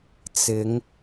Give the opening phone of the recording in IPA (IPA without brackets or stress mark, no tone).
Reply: t͡s